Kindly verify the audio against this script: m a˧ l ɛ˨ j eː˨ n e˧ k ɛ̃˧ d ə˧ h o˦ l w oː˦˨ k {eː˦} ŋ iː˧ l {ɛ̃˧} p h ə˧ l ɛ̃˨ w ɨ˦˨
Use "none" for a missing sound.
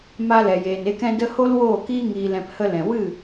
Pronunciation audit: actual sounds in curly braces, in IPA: iː˦, ɛ̃˧

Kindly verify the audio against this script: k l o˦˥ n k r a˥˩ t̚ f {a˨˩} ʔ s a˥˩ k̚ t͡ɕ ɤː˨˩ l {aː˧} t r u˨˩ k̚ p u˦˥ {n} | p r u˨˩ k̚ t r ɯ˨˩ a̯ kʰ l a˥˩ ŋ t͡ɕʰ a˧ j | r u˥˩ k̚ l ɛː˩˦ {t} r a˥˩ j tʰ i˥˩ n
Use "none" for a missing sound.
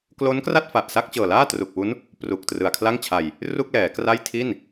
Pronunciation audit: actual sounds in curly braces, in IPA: a˨˩, aː˥˩, n, k

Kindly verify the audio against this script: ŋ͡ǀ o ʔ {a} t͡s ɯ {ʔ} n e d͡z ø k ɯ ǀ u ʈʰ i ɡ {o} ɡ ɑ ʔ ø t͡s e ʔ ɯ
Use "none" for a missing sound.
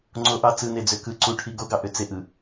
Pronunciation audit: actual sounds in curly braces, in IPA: ɑ, none, o

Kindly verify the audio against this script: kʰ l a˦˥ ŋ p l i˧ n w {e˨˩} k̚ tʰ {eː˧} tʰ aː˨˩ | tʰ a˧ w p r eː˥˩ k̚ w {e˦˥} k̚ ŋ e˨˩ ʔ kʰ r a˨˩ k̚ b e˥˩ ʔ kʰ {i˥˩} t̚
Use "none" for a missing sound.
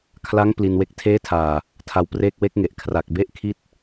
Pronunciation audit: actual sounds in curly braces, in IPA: e˦˥, eː˦˥, e˦˥, i˥˩

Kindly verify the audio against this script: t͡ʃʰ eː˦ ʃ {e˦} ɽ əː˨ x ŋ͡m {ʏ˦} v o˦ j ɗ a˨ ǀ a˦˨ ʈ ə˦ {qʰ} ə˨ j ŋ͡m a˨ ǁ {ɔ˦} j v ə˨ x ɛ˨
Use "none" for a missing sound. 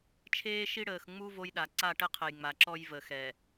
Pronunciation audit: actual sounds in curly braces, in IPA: i˦, u˦, qʰ, ɔ˦

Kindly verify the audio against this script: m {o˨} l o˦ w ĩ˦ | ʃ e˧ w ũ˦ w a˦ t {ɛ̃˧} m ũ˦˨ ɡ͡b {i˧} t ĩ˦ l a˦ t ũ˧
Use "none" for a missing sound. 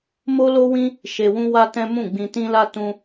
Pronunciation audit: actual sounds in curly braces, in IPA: o˦, ɛ̃˦, ĩ˧

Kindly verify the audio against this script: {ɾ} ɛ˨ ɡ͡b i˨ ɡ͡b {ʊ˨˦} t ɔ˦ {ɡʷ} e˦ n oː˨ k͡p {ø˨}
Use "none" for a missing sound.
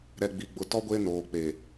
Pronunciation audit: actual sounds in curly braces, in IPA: ɾ, ʊ˨, ɡʷ, e˨

